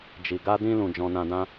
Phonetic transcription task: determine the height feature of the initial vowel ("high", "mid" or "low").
high